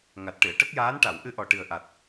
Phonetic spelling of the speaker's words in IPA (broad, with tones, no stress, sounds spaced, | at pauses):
ŋ a˨˩ t̚ ʈ ɨ˨˩˨ ə̯ ʈ ə˦˥ k̚ j aː˧˥ n ʈ a˨˩˨ w ʔ ɨ˧ ʔ ɔ˨˩ ʈ ɨ˨˩ ə̯ ʔ a˨˩ t̚